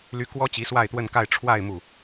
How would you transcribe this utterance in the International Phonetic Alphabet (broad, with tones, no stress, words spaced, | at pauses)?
ly˥ kwɔ˥t͡ɕi˧˥ swa˥˧ɪ̯t̪wə˥˧nka˥˧ɪ̯ ʈ͡ʂʰwa˥˧ɪ̯ mu˥˩